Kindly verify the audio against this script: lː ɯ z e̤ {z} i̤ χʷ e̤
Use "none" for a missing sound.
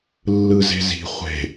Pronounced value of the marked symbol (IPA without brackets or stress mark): z